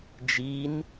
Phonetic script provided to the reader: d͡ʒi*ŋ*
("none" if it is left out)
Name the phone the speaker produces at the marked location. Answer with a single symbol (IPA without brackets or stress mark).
n